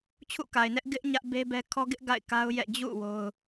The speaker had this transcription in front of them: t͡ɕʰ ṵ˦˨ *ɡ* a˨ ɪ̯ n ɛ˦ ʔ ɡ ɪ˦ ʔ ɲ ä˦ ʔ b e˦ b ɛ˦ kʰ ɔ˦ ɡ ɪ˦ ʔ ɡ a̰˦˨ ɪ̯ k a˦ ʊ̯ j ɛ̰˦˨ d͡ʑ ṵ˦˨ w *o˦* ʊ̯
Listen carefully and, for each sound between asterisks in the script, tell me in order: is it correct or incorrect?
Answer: incorrect: k, correct

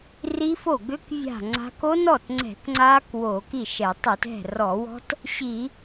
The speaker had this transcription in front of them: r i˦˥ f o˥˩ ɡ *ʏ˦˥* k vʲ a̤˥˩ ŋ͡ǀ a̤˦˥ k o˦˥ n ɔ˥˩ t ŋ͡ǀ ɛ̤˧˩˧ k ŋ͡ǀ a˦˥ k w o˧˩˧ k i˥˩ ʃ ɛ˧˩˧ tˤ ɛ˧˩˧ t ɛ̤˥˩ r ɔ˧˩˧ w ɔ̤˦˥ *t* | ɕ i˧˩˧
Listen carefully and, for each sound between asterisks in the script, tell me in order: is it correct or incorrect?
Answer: correct, correct

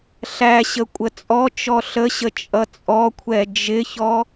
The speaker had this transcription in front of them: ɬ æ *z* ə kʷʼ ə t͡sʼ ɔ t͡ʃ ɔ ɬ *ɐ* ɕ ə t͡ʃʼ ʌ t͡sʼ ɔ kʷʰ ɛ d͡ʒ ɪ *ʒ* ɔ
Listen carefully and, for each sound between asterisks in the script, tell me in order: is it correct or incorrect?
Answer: incorrect: ɕ, incorrect: ə, incorrect: ç

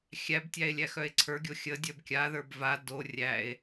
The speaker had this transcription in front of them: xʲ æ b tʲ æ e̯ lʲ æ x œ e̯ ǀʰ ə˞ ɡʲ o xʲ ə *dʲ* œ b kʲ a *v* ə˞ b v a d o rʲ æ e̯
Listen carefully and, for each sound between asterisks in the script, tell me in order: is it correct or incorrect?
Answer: correct, incorrect: ð

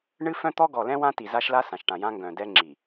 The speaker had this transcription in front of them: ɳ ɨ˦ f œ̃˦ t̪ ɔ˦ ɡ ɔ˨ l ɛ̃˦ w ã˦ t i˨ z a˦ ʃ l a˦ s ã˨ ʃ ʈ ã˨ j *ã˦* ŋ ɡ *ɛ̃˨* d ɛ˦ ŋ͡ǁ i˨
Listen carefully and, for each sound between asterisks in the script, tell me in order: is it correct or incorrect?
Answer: correct, incorrect: œ̃˨

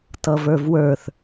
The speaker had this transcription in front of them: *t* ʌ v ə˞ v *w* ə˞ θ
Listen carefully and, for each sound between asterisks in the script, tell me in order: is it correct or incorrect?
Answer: correct, correct

